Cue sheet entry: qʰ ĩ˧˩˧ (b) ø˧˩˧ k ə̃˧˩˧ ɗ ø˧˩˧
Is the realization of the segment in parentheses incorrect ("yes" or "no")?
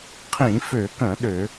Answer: yes